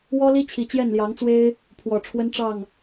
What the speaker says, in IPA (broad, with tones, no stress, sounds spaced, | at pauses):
w ɔ˦ l i˦ t͡ɕʰ i˨˩ t͡ɕ j ɛ˥˨ n l j ɑ˨˦ ŋ t͡s w e˦ ɪ̯ | pʰ w ɔ˨˩ ʈ͡ʂʰ w ə˦ n ʈ͡ʂ ɑ˥˨ ŋ